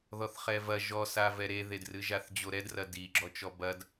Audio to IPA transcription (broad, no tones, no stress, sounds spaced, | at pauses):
ð ɔ θ χ ɛ v ɐ ʒ ɔ s a v ɛ ɾ e ð e d r ɨ ʒ a θ d͡ʑ o ɾ ɛ d r ɐ d i ɡ͡ǁ ɔ t͡ʃ ɔ b ɐ d